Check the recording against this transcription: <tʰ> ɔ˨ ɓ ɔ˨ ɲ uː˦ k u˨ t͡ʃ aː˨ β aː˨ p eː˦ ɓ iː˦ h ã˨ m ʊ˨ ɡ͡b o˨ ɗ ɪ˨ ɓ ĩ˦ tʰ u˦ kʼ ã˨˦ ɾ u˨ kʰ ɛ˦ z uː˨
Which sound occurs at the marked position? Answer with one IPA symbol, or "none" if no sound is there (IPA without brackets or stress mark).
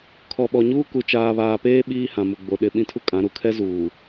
kʰ